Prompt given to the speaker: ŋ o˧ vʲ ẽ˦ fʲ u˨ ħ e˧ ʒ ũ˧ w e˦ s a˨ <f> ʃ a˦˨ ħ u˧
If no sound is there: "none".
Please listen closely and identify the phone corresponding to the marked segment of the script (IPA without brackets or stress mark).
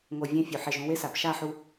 p